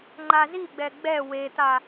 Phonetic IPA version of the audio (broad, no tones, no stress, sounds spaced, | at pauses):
ŋ͡ǃ a z i ɡ͡b ɛ ɡ͡b ɛ w e t̪ a